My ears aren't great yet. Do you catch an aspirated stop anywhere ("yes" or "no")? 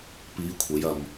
yes